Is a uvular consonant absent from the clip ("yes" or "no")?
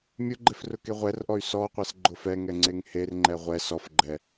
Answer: no